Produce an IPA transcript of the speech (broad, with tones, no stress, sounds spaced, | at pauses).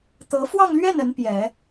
t̪ ɤ˧˥ f w ɑ˥˧ ŋ l ɥ ɛ˥˩ n ə˧˥ n p j ɛ˨˩˦